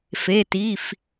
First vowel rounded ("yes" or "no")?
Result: no